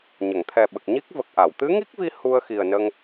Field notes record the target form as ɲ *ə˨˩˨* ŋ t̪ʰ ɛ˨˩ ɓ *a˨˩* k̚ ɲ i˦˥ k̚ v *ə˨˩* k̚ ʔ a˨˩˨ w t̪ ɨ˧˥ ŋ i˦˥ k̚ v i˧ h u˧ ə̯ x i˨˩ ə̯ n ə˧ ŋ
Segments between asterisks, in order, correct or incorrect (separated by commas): correct, incorrect, correct